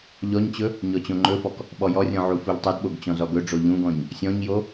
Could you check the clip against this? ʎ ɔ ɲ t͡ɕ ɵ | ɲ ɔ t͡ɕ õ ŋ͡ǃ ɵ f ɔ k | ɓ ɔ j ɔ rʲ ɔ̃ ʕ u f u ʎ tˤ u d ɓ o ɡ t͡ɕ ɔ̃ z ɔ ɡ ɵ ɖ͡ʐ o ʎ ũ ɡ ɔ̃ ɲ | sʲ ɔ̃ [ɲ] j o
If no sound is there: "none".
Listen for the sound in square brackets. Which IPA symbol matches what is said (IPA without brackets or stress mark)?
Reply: ɲ